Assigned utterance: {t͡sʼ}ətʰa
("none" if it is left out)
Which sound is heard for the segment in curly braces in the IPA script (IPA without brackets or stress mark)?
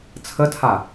t͡sʰ